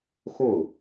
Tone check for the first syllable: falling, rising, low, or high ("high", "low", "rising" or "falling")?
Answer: falling